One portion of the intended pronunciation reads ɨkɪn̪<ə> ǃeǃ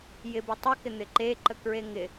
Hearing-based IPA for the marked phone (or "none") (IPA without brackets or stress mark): ɪ